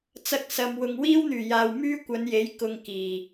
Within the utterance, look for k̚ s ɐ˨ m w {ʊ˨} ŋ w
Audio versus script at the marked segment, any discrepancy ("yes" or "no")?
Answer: no